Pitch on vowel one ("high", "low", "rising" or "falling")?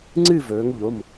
falling